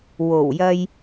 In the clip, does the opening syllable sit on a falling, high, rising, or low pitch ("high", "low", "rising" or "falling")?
low